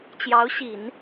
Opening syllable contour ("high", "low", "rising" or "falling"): rising